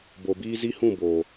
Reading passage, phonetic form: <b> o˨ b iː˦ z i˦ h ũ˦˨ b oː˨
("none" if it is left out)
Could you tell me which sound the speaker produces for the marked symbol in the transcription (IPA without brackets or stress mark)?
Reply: b